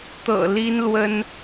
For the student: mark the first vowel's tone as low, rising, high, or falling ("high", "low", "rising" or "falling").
low